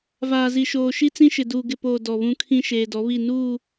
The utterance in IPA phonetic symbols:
v aː˨ z i˨ ʃ oː˨ ʃ i˦ t͡s ĩ˦ ʃ ɪ˨ d uː˨ ɡ ɪ˨ p oː˨ d ɔ˨ β ũ˦ kʰ ĩ˦ ʃ eː˨ d ɔ˨˦ β i˦˨ n uː˦˨

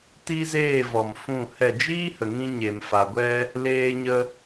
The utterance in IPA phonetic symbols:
t i˦ z eː˦˨ v ɔ˨ m f ũ˦˨ h ɛ˦˨ d͡ʒ iː˦ h ə˨ ŋ ĩ˧ ɲ e˨ m f a˨ ɡʷ ɛ˧ | l eː˧ ɲ ə˧

